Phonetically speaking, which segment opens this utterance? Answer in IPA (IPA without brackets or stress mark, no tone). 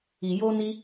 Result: i